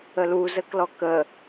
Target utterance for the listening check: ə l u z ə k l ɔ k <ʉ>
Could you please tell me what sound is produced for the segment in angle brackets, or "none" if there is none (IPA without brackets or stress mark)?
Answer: ə